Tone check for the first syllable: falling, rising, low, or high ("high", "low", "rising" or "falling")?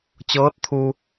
rising